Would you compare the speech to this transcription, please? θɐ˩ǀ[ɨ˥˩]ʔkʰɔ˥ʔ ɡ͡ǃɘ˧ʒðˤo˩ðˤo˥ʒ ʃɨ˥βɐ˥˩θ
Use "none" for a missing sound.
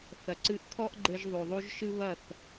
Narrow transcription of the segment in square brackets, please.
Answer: ɨ˧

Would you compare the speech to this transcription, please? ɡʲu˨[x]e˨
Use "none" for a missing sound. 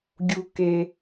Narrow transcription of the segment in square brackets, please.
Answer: k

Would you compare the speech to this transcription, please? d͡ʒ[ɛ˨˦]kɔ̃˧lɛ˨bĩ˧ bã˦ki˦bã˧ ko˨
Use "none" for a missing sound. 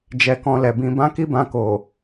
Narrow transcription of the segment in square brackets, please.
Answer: ɛ˧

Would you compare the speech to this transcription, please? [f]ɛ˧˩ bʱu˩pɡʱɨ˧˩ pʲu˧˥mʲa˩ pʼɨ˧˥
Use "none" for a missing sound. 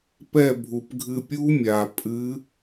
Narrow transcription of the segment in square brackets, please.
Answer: p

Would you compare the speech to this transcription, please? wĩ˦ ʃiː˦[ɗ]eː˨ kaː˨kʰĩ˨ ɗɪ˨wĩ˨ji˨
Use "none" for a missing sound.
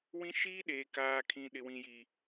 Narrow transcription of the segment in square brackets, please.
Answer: ɗ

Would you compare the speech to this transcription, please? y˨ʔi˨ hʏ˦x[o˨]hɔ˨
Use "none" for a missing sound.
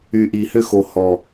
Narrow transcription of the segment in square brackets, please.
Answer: o˨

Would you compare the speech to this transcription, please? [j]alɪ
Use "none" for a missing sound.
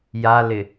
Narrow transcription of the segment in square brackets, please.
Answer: j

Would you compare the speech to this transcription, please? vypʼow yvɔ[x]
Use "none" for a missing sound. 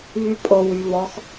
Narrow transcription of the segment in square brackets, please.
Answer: x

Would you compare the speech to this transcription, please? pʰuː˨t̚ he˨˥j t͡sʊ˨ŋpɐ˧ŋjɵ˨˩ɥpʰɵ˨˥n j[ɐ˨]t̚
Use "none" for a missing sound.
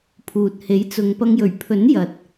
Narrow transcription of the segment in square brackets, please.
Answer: ɐ˨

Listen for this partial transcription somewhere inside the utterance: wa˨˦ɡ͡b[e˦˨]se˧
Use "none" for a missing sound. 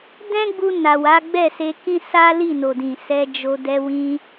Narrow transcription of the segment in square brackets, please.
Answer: ɛ˦˨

